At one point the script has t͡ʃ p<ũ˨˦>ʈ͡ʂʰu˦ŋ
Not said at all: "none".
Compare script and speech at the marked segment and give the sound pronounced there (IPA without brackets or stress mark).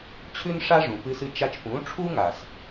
ũ˨˦